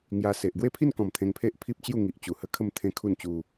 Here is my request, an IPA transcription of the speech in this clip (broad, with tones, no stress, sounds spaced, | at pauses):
ŋ j a˧ s e˨ ʔ ɡ w e˥˧ pʰ i˥˧ n k ɔ̃˨˩ m t̪ʰ ẽ˧ ŋ pʰ e˦ ʔ pʰ i˦ p̚ t͡ɕ j u˥˧ ŋ i˨ ʔ t͡ɕ u˨˩ h ə˦ kʰ ə˥˧ m t̪ʰ ẽ˦ kʰ u˥˧ n t͡ɕ u˧